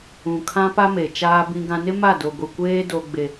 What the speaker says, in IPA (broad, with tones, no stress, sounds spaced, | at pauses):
ũ˨ kʰ ã˦ p a˦ m e˨ t͡ʃ aː˦ b ĩ˦ ɡ ã˦ n ɪ˦ m a˦˨ d o˨ ɡʷ i˨ kʷ eː˦ d o˦ ɡ͡b e˦